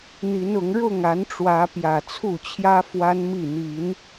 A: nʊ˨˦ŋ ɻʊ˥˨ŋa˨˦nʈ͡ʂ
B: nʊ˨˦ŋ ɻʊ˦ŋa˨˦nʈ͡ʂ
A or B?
A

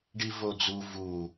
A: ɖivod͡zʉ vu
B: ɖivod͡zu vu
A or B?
B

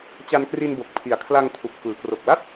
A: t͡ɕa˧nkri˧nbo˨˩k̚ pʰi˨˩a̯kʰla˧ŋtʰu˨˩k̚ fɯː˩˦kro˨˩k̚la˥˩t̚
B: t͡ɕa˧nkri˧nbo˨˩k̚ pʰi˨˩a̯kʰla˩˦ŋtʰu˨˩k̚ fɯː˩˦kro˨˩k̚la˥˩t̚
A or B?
A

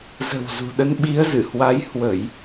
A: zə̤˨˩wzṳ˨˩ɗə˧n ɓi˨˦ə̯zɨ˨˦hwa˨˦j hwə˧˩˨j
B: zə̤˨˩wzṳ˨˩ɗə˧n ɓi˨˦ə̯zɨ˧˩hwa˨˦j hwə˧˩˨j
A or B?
B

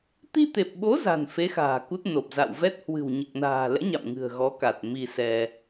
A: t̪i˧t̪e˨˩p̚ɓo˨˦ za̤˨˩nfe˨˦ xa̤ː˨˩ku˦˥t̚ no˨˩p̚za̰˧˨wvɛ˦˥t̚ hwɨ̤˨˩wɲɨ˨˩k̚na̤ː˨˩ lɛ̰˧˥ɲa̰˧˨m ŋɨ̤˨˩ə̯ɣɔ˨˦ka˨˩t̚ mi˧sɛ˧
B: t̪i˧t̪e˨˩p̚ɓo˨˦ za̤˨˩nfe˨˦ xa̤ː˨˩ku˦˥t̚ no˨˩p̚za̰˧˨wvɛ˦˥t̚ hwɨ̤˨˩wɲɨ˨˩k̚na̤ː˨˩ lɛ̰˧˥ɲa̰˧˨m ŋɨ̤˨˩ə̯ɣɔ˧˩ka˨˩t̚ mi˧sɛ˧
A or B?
A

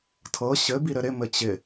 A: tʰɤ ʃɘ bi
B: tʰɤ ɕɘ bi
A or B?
B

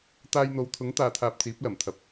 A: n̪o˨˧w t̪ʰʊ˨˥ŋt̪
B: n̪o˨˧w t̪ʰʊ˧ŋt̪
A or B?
A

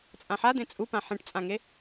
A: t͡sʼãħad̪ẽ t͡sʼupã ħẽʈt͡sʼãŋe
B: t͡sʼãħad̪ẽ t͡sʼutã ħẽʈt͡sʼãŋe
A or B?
A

